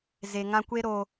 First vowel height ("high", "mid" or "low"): mid